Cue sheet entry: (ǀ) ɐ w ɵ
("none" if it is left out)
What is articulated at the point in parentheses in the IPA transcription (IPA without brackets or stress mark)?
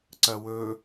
ǀ